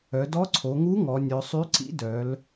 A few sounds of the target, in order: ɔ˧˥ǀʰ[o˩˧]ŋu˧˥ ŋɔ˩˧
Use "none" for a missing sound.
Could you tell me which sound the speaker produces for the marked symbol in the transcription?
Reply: o˩˧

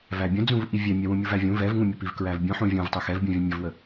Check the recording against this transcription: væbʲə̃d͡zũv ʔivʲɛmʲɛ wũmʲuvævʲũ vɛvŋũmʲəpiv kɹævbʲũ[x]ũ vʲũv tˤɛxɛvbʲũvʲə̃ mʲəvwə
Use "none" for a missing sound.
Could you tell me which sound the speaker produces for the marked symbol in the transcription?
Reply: ħ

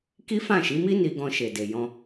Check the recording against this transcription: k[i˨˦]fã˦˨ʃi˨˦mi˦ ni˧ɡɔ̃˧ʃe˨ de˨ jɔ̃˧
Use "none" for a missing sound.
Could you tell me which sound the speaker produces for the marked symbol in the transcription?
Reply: i˦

